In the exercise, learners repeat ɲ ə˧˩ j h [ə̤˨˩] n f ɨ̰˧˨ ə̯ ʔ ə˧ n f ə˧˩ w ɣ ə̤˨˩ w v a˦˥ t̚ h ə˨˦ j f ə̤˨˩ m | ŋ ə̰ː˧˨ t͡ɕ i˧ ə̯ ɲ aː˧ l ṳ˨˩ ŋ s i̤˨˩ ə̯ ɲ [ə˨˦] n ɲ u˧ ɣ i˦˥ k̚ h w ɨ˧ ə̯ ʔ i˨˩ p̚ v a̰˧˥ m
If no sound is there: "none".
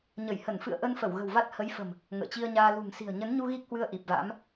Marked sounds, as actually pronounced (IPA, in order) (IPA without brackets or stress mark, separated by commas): ə˧˩, ə˨˦